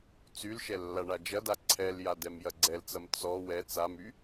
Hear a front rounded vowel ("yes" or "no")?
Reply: yes